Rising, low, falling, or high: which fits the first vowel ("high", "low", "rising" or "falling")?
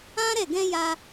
high